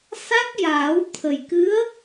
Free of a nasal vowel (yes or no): yes